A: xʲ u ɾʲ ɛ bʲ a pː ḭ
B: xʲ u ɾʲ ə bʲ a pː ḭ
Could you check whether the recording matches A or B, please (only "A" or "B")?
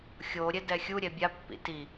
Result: A